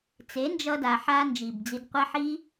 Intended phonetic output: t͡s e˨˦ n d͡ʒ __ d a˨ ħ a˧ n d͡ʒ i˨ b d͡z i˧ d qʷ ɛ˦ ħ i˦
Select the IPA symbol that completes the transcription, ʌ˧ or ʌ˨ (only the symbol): ʌ˧